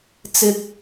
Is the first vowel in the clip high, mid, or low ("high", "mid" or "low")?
high